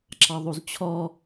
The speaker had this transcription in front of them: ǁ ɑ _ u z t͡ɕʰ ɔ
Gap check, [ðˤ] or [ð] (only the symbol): ðˤ